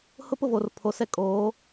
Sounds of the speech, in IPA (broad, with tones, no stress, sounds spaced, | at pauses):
h ʊ˦ p ʊ˦˨ v oː˨ r pʰ o˨ s ɛ˦ kʼ oː˨˦